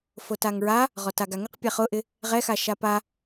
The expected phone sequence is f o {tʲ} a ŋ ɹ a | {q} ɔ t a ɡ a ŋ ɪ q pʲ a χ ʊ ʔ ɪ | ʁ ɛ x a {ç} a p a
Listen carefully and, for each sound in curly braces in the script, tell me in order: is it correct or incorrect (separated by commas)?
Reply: incorrect, incorrect, incorrect